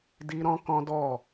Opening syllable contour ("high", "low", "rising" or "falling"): high